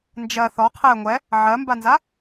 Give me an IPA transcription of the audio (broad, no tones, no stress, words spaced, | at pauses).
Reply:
nd͡ʒɜ θɔ qʰɛ ŋʷɛ | ʕɜmbanza